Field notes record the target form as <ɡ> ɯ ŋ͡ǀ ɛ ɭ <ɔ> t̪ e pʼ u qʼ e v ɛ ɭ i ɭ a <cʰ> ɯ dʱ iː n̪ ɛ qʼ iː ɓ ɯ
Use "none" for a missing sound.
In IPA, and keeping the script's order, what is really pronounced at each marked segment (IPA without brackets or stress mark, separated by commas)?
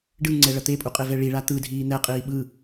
ɖ, ʌ, t̪